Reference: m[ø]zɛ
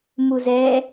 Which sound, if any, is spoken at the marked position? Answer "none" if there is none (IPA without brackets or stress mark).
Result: u